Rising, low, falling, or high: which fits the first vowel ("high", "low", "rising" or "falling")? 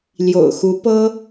low